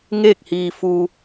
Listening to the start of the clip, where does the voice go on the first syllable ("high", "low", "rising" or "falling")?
falling